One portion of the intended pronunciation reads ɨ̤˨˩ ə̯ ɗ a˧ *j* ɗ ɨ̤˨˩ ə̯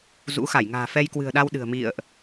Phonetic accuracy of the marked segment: incorrect: w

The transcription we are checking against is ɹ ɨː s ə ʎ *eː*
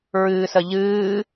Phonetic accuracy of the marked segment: incorrect: ɨː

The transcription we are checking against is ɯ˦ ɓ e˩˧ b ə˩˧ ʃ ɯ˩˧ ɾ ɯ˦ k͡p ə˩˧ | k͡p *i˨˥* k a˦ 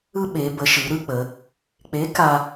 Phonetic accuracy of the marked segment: incorrect: e˨˥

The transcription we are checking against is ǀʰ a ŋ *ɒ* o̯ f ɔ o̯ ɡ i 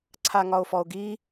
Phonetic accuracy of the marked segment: correct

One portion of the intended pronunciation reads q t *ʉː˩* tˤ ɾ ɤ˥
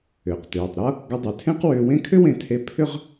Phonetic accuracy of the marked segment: correct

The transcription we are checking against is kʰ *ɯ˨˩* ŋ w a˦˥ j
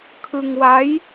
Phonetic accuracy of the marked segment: incorrect: ɯ˧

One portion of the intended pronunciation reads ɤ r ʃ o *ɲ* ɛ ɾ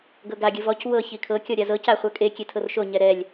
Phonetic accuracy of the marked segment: correct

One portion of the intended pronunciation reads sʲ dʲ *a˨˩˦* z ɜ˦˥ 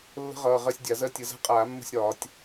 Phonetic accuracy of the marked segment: correct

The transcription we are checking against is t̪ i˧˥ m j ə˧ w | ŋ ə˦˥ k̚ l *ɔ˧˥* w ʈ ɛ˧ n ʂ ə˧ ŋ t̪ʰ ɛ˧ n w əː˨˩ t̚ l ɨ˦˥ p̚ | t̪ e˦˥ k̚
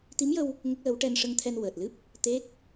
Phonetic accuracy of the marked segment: incorrect: ə˧˥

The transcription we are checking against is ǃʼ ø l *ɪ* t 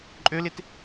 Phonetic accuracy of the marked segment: correct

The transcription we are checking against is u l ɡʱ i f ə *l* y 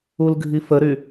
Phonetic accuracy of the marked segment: incorrect: ɾ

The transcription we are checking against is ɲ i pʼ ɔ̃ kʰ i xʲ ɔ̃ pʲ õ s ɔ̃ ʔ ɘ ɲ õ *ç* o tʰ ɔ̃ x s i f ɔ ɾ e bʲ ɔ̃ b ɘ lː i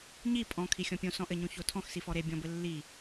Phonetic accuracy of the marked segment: correct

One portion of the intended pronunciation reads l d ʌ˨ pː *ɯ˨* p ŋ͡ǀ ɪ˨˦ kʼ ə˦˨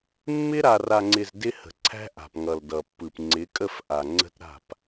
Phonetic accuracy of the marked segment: correct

